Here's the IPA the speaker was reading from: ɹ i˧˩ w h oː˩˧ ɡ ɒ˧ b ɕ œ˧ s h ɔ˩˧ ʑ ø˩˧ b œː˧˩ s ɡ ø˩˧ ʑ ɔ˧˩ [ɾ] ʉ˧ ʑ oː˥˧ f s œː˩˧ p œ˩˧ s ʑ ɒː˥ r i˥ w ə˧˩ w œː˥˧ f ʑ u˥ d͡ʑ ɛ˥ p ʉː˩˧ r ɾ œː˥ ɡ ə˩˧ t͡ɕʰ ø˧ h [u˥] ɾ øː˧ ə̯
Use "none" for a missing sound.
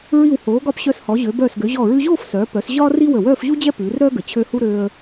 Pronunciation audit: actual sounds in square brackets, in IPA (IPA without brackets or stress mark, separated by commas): ɹ, u˥